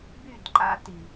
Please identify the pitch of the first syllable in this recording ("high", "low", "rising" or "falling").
falling